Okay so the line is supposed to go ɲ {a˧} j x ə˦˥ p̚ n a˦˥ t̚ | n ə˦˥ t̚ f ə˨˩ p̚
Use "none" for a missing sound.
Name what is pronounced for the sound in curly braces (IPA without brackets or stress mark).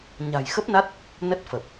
a̤˨˩